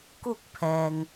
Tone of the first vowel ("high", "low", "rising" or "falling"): falling